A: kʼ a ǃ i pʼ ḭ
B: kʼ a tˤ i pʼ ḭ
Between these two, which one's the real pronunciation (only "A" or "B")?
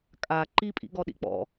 A